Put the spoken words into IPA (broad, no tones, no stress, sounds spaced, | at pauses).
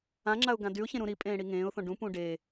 ã ŋ͡ǁ a ʊ̯ ɡ ã d y ʊ̯ ç ẽ ɾ ũ ɾ i pʼ ẽː ɽ i ŋ ẽː ʊ̯ θ õ ɖ ũ p ũ ɖ e